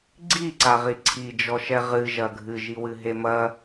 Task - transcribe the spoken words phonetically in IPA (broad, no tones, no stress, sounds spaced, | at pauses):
ɡ͡ǀ i ǀ a ʁ i ǀʰ i d͡ʒ ɔ ʃ ɛ ʁ ɨ ʒ ɐ ɡʱ ɨ ʒ i w ɨ ɦ e m ɐ